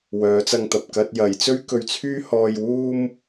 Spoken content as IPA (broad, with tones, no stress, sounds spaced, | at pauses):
w œː˨˧ t͡s ɐ˧ ŋ t̪ ɐ˨ p̚ k ɐ˥ t̚ j ɐ˨˧ j t͡s ɵ˥ ɥ k ɵ˧ ɥ t͡sʰ yː˥ h ɔː˧ j w uː˥ m